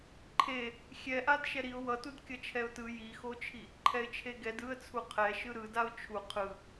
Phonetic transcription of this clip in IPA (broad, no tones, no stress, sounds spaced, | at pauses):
ǃʰ e | xʲ ɛ ʔ a d ʃ ɛ ɾ i ʊ̯ w ʌ t u d kʲ ʌ t͡ʃʰ ɛ ʊ̯ t ɯ j i x o t͡ʃʰ i | ǃʰ ɛ ɪ̯ t͡ʃʰ e ɡ ɛ d ɯ ə̯ t͡sʰ u qʰ ɛ ʃ ɯ ɾ ɯ d a ʊ̯ t͡ʃʰ u qʰ ɯ